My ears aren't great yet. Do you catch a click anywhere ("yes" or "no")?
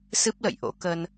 no